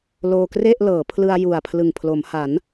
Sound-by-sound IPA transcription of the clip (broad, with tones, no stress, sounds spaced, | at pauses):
l oː˧ k r e˥˩ ʔ l ɤː˩˦ pʰ l ɯ˧ a̯ j u˨˩ a̯ pʰ l ɯ˨˩ ŋ pʰ l o˩˦ m h a˩˦ n